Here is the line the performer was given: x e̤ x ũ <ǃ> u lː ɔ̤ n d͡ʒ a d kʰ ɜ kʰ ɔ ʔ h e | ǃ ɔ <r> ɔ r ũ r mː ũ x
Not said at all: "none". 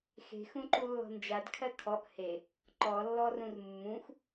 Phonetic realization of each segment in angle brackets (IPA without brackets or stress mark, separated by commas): ǃ, lː